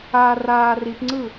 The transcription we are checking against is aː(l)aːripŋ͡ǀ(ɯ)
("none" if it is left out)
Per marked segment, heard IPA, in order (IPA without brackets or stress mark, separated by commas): r, ɯ